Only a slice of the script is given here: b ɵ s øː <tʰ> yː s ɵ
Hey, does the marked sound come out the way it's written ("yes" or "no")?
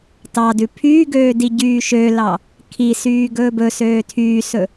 yes